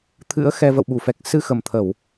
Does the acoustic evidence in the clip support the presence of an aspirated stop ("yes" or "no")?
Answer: yes